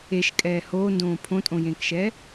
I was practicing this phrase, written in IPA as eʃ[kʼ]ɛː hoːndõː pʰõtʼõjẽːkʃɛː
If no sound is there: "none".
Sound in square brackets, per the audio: kʼ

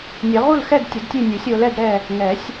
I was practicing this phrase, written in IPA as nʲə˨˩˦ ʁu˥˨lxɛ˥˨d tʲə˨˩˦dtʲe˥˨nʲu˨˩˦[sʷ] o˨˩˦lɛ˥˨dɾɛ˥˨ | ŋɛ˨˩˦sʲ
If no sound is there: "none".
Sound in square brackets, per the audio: sʲ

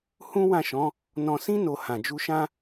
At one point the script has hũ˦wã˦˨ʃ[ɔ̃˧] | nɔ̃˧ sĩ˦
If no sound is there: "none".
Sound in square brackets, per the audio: ɔ̃˨˦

